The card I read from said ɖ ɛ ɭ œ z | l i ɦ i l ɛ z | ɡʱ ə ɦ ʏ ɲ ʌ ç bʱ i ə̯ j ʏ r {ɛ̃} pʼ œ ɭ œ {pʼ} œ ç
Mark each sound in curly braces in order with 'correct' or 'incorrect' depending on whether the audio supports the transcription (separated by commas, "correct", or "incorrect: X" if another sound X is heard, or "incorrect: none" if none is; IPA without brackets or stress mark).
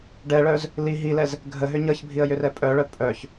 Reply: incorrect: ɛ, correct